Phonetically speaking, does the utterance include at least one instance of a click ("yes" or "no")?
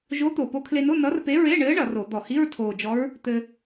no